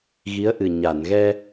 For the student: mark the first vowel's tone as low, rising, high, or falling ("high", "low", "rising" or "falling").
rising